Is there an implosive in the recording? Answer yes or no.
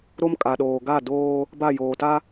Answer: yes